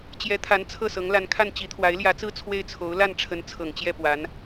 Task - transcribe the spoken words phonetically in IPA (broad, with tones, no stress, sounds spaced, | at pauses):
t͡ɕ j ɛ˧˥ t̪ʰ a˧˥ n t͡sʰ ɤ˥˩ s ɤ˧˥ ŋ l a˧˥ n kʰ a˥˩ n t͡ɕ i˧˥ t̪ʰ w a˧˥ ɪ̯ l j ä˧˥ t͡s ɹ̩˥˧ t͡sʰ w e˥˩ ɪ̯ t͡sʰ o˧˥ ʊ̯ l a˥˩ n ʈ͡ʂʰ ə˧˥ n t͡sʰ ɤ˨˩ ŋ t͡ɕ j ɛ˥˩ p w a˧˥ n